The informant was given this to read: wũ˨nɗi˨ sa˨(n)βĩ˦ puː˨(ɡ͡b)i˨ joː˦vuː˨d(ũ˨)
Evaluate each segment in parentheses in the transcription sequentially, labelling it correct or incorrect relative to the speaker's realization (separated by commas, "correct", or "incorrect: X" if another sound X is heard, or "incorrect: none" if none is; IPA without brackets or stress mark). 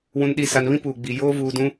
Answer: correct, correct, incorrect: ũ˦